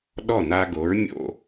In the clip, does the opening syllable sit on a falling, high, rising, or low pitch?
falling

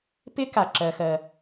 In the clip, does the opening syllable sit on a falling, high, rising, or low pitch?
high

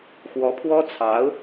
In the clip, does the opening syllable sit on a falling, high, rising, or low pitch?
rising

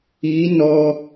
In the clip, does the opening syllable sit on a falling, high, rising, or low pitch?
rising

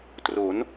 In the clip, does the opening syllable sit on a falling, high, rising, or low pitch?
rising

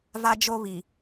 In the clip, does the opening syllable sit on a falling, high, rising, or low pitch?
high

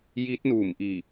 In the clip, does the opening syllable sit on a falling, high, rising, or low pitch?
rising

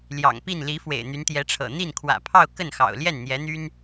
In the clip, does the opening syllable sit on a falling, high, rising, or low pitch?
low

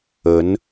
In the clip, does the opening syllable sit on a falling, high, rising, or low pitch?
rising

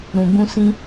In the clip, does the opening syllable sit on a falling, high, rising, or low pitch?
low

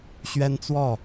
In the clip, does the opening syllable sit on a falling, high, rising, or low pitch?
high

